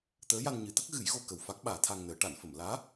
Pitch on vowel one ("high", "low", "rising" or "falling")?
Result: rising